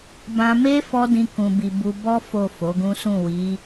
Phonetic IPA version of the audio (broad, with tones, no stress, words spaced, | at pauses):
bã˧me˦ fɔ˦dĩ˧kũ˨bi˨ bu˧ bɔ˦ fo˦˨fo˨˦ɡũ˦sũ˦˨ wi˨˦